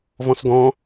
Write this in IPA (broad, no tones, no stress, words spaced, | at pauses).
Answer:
vɔ̃sɡɔ̃